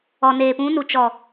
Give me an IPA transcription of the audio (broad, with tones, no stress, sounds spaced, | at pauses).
ɔ˨ n eː˨ p ũ˨˦ n u˨ t͡ʃ ɔ˨